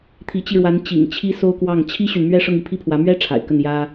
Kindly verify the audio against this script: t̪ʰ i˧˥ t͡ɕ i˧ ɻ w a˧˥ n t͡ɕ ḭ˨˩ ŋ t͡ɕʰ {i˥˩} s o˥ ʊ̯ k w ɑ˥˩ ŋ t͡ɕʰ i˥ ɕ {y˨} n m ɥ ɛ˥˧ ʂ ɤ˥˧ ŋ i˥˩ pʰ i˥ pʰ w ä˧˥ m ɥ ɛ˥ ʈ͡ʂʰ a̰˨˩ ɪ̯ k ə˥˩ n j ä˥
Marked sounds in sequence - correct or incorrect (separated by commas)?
incorrect, correct